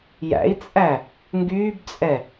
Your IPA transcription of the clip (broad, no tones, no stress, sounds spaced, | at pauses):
j æ̰ i̯ t͡sʼ æ | ŋ ɡ yː b t͡sʼ ɛ